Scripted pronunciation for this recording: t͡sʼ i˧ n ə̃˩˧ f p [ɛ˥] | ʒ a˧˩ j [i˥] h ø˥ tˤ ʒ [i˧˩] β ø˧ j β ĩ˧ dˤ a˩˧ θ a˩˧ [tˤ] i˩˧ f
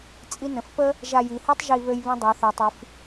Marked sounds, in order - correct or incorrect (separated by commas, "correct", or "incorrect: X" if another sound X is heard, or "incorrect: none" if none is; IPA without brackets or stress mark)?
incorrect: ə˥, incorrect: i˩˧, correct, correct